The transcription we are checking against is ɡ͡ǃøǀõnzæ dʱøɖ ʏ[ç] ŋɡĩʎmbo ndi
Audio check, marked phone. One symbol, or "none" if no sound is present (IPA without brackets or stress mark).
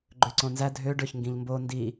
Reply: ç